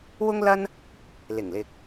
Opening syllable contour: high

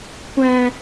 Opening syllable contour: high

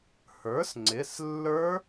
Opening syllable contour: rising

